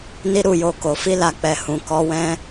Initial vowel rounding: unrounded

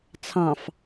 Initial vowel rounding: unrounded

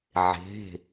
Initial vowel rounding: unrounded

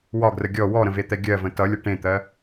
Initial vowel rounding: rounded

